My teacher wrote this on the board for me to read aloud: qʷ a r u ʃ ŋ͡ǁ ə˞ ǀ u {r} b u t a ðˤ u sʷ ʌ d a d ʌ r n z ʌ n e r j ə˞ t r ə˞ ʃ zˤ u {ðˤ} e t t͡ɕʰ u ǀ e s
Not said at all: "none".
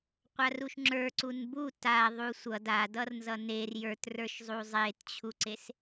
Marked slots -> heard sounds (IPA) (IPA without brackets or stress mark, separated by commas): n, zˤ